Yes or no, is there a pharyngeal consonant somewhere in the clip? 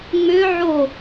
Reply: yes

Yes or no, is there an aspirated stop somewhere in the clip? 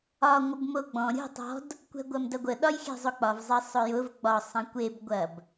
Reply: no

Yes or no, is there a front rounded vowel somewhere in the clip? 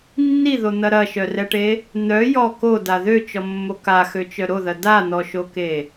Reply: yes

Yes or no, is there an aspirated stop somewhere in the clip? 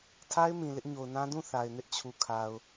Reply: yes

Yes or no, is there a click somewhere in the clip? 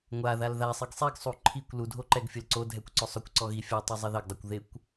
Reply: yes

